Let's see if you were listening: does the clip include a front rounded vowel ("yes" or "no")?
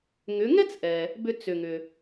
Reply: yes